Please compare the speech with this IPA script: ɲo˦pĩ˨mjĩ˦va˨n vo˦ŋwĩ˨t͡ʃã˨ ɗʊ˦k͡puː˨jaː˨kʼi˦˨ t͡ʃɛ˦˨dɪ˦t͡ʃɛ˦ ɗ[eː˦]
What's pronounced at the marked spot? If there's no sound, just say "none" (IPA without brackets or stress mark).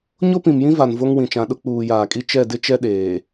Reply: eː˨